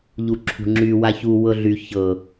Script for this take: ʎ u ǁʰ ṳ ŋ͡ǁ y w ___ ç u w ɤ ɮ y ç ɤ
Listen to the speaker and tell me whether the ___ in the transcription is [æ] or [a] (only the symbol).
a